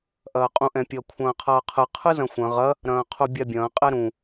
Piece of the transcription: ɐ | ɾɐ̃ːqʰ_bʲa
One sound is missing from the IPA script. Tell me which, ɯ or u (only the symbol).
u